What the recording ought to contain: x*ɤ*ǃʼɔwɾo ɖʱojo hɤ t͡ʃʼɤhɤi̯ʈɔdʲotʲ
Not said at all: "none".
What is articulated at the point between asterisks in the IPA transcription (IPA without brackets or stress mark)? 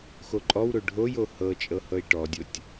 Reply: o